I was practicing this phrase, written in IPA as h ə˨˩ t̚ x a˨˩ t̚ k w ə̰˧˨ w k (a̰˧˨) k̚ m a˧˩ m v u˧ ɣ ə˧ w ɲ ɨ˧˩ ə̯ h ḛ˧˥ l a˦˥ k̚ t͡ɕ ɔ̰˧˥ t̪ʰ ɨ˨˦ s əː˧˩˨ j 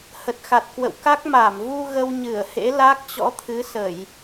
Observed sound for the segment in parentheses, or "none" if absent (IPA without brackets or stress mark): a˦˥